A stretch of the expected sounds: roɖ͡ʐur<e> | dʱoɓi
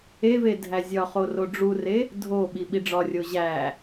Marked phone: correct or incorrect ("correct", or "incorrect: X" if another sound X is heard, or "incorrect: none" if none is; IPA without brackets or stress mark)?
correct